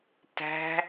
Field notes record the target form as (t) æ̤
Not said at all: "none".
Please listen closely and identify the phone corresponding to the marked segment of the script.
t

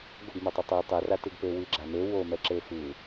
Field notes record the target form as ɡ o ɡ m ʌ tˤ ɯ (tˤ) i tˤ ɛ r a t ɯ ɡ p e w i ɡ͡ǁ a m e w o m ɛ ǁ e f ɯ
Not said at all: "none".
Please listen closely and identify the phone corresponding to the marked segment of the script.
tˤ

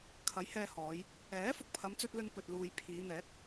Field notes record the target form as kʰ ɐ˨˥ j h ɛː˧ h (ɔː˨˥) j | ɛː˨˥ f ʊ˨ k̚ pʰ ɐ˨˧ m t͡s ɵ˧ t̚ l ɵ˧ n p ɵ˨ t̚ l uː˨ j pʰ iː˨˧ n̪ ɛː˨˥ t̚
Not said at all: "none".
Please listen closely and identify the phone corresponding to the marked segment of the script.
ɔː˨˧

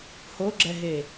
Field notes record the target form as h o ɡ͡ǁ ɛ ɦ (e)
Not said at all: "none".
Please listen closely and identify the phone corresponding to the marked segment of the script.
e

